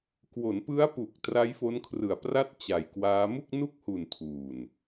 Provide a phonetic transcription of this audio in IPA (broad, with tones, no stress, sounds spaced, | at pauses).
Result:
k w o˩˦ n p ɯ˦˥ a̯ p u˨˩ k̚ t r a˦˥ j f o˦˥ n kʰ r ɯ˨˩ a̯ p r a˥˩ t̚ t͡ɕ a˨˩ j k w aː˦˥ m u˥˩ k̚ n u˥˩ k̚ h u˨˩ n tʰ uː˨˩ n